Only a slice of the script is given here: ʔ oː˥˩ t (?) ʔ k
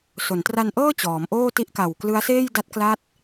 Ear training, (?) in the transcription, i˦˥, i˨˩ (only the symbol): i˦˥